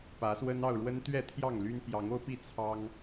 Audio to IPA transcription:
pä˨˦swə˦n ɑ˥˨ʊ̯ɻwə˦n t̪ɥɛ˥˨t̪ʰjɑ˥˨ŋly˦n pjɑ˨˦ŋo˦ʊ̯pi˥˨ t͡sʰɑ˦ŋ

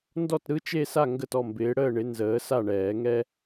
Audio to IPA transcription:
ndɔ˥˨tɾɯ˧˥˧t͡ʃe˥˨sa˥˨ ŋɡə˥˨tɔ˥˨mbɪː˨˥ ɽəː˥˨ɳɪ˨˥ nzəː˨˥sa˥˨ɳɛː˨˩˦ŋɛ˥

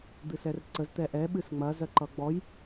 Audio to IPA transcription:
d̪ɨsɛrǀəz t̪ɛʔɛ ɓɨsŋ͡mɐ zɜǃʌɡ͡bɔj

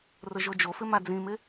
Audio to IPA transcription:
rʊʒod͡ʒofɪ mad͡zĩmɪ

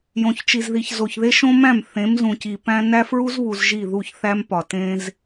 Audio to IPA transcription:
jõ˨çt͡ʃi˨zði˨ç zo˨çðe˦ ʃõ˦mæ̃˦˨m θẽ˨˦mzũ˨ci˨pæ̃˦ næ˦fɹu˦zβu˨z ʒi˦˨ðu˦˨çθæ˦mpɒ˨ tẽ˦z

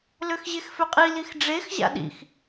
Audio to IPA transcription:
løxʑexføqʼi lixɖ͡ʐex ʑa̰ɗḭx

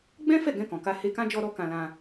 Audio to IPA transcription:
ɡ͡bɛ̃˦fɛ˦˨ ɡɛ̃˧ kɔ̃˨ ka˧he˧kã˦ d͡ʒɔ˧ɾɔ˧ kã˧lã˧

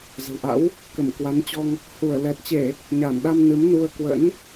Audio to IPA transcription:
zə̤˨˩wʔa̰˧˥w | kə˧˩mkwa˨˦nt͡ɕɔ˧ŋ | hu˧˩ə̯lɛ˨˩t̚ t͡ɕe˧˩˨ | ɲa˧˩nɗa˧m nɨ˨˦mnu˧ə̯ kwə̰˧˥n

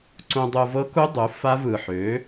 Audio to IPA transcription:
ǀũ˧dˤu˧vɤ˦˥ ku˦˥dˤu˩˥ fa˦˥vɯ˨˩ħø˩˥

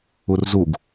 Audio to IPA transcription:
urzuɡ

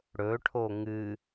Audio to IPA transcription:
ɽɵʈʰo ŋɨ

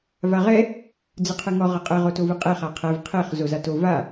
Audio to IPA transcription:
vaʁɛ | d͡zɨqʰɨŋɔ ʁɐqʼɘ ʁotovɨqʼe χaqʰɛv qʰeχ zozato va

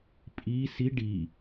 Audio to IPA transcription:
pʼi si ɖi

